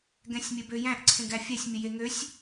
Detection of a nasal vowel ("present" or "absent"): present